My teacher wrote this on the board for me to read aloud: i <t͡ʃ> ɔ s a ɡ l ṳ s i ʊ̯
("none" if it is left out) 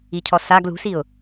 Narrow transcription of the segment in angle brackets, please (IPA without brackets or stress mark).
cʰ